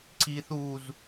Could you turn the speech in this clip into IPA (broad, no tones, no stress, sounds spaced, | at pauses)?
ǀ i θ u z